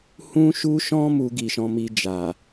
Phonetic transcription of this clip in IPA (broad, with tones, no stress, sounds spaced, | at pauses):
h ũ˧ ʃ u˧ ʃ ɔ̃˧ m u˦ ɡ i˧ ʃ ɔ̃˧ m i˧ d͡ʒ a˨